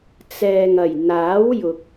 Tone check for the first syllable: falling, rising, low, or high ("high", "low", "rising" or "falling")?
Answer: low